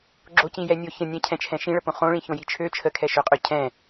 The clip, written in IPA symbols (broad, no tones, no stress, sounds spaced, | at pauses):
ɡ͡ǁ o c ĩ j ɛ nʲ o ç ə̃ nʲ ɛ̃ cʰ ɛ̃ t͡ʃʰ ɛ̃ ʃ ĩ ɭ ə p õ χ õ ɭ ĩ ç õ j i t͡ʃʰ ø t͡ʃʰ ə kʰ ɛ ʃ ø qʼ ø cʰ ɛ̃